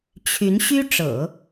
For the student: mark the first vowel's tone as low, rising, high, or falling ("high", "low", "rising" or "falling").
rising